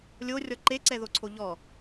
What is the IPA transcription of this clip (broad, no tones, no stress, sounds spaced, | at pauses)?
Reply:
lʲ o rʲ ɔ ǃ e ǀ ɛ ð o ǀʰ o ʎ ɔ